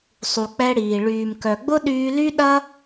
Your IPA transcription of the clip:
sˤ u˩ k͡p ɛ˧ ɽ iː˩ ɭ yː˩ m k œ˩ ɡ͡b ʊ˥ ɗ yː˧ l y˥ ɗ ɐ˥

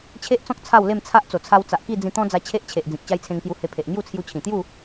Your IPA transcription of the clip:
t͡ɕʰ e˦ ʔ t͡s ɔ̃˦ k̚ t͡sʰ a˥˧ w l e˥˧ m t͡sʰ a˦ ʔ t͡s o˨˩ t͡sʰ a˧ w t͡s a˨ ʔ k i˥˧ d͡z ĩ˧ t̪ ɔ̃˦ d͡z a˧ t͡ɕʰ e˦ ʔ t͡ɕʰ e˨ ʔ d͡z ĩ˨ k̚ t͡ɕ a˦ j t͡sʰ ẽ˧ ŋ k j u˧ h e˧ pʰ e˨ ʔ ŋ j u˥˧ t͡sʰ j u˧ t͡ɕʰ ĩ˨˩ t̪ j u˥˧

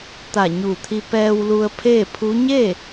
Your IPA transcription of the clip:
t̪ a˧˩ ɲ u˧˩ t̪ʰ i˧ p ɛː˧ w l u˧ ə̯ pʰ eː˥˨ pʰ u˧˥ ɲ e˥˨

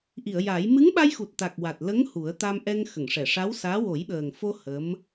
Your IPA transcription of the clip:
ʔ i˨˩˨ ə̯ j a˨˩˦ j m ɨ˧˥ ŋ ɓ a˧ j x u˨˩ t̚ t̪ a˨˩ k̚ w a˨˩ t̚ l ə˧˥ ŋ h u˨˩˦ ə̯ t̪ a˧ m ʔ ɛ˧ ŋ x ə˨˩˨ ŋ ʂ ɛ˨˩˨ ʂ a˧˥ w s aː˧˥ w o˨˩˦ j ɓ əː˨˩ ŋ f o˧ h ə˧˥ m

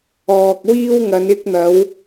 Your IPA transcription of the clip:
ɔː˨ k̚ w iː˧ w ŋ ɐ˨˧ n ɪ˧ k̚ n̪ ɐ˨˧ w

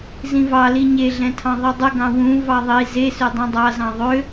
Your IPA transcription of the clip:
z ĩ v ɑ l i ɲ e ɮ ɛ̃ tʰ ɑ̃ ðˤ i dˤ ə ɡ ɑ̃ w ũ v ɑ ðˤ i z e s ø dˤ ũ dˤ ɑ z ɑ̃ ðˤ ø

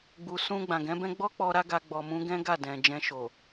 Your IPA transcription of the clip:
ɡ͡b u˨ s ũ˧ ɡ͡b ã˨ ɡ ɛ̃˨˦ b ɛ̃˦ ɡ͡b ɔ˦ k͡p ɔ˧ ɾ a˦ ɡ a˧ ɡ͡b ɔ˨ m ũ˨˦ ɡ ɛ̃˦ ɡ a˦˨ d ɛ̃˨ d͡ʒ ɛ̃˧ ʃ o˨

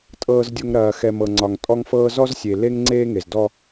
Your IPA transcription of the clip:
tʼ ɤː˨ z dʲ o˨ ŋ ɾ ɐː˨ x ɛ˨ m ɤ˨ ŋ͡ǀ ɒ˨ ŋ tʼ ɔ˦ ŋ f ɤː˦ z ɔ˦ z sʲ e˨ l e˦ ŋ ŋ͡ǀ eː˦ ŋ e˨ z d ɔ˦

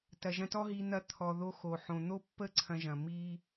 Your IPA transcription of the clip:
t ɐ˨ ʒ ɐ̃˧ t ɔ˦ ɦ i˧ n̪ ɐ˧ t̪ʰ ɔ˨ ð o˧ x o˨ ħ õ˨ n̪ o˦ pː ə˦ ǀʰ ɐ̃˧ ʒ ɐ̃˨ m i˦

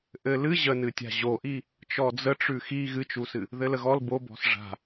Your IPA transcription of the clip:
ʔ ɘ l ɨ ʑ ə n ɨ tʲ a̤ ʑ o ʔ i | t͡ʃ ɔ d͡z ə ʈ͡ʂ ʉ x i ɣ ɨ t͡ʃ u s ɨ | ð ɘ l ə ɣ ɔ l b o b ɔ̤ s ʐ a̤

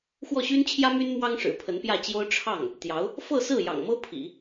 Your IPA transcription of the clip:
x w ɔ˥˩ ɕ y˥ n t͡ɕʰ j ä˥ m y˥ n m w ɑ˥ ŋ ʂ ɻ̩˨˩ pʰ ə˧˥ n p j ä˥˩ t͡ɕ j o˥ ʊ̯ ʈ͡ʂʰ ɑ˥˩ ŋ | t̪ j ɑ˧˥ ʊ̯ | f ɤ˥˧ s ɹ̩˥˩ j ɑ̰˨˩ ŋ m ɤ˥ pʰ ḭ˨˩˦

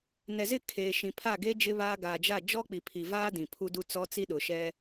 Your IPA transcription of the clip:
n ɛ˨ z ɪ˦˨ kʰ eː˨ ʃ ĩ˨ pʰ a˦˨ ɡ eː˦ d͡ʒ ɪ˦ β aː˦ ɡ aː˨ d͡ʒ a˦˨ d͡ʒ ɔ˦ k͡p i˨ pʰ i˨ v aː˦ d ĩ˨ pʰ u˦ d u˦ t͡s ɔ˦ t͡s i˦ ɗ ʊ˨ ʃ ɛ˦

